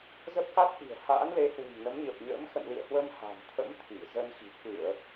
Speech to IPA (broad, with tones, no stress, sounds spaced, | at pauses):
z ə˦˥ p̚ k a˦˥ t̚ ʔ i̤˨˩ ə̯ h a̰ː˧˥ n l e˨˦ h w ṳ˨˩ ŋ n ə˨˦ m ɲ ə˨˩ p̚ ɲ ə̰ː˧˥ m x ə̰˧˨ n l ḭ˧˨ ə̯ h w ə˧ m h a̤˨˩ n t̪ʰ ə̰˧˥ m t̪ʰ i˧˩ z ə˧ n x i̤˨˩ k ɨ˧˩˨ ə̯